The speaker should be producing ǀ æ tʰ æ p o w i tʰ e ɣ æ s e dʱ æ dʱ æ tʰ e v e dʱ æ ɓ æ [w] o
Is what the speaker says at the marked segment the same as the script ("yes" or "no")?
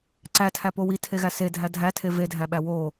yes